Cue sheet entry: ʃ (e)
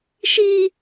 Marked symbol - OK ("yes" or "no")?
no